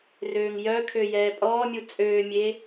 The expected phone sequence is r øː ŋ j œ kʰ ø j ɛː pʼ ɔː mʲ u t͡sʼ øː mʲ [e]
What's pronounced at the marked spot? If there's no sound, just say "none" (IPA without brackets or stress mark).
e